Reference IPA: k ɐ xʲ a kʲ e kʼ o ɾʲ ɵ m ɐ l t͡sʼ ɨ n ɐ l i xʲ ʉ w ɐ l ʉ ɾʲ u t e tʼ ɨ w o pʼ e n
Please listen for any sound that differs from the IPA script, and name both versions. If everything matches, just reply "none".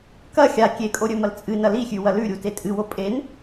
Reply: none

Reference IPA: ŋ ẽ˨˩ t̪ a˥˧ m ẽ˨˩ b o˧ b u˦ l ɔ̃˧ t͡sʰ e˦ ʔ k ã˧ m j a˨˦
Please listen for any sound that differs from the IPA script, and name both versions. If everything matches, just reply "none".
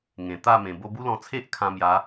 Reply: k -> kʰ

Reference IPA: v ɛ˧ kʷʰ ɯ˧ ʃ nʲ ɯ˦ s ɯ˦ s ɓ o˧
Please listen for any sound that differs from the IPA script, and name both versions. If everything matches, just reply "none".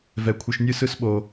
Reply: none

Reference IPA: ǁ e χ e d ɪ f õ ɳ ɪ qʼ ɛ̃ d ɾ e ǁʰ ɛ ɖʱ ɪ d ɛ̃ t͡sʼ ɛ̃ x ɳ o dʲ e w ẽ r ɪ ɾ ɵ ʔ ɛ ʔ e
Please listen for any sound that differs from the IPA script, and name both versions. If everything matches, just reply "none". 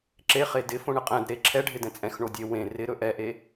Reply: none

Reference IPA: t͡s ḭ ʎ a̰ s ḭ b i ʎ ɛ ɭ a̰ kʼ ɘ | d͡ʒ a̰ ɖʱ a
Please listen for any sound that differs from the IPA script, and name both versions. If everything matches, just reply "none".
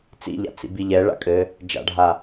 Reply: s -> t͡s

